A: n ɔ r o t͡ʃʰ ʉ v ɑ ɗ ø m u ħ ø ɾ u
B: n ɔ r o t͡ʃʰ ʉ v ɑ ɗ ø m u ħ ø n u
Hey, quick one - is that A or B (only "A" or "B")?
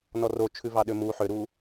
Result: A